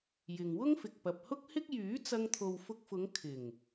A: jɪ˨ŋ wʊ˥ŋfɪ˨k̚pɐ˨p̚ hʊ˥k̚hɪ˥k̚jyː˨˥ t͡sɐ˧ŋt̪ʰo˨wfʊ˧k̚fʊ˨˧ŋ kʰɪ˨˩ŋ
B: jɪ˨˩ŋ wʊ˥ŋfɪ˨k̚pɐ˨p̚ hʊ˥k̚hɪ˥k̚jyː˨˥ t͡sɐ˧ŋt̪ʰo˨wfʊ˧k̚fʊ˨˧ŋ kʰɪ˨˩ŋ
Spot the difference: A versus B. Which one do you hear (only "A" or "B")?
A